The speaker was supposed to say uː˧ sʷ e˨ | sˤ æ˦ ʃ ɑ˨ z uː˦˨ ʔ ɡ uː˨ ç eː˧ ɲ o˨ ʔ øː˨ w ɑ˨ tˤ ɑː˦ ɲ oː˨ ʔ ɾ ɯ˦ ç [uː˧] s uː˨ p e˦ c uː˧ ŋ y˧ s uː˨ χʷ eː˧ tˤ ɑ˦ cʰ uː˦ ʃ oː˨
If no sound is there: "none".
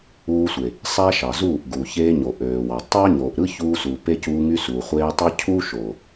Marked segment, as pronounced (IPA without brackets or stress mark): uː˧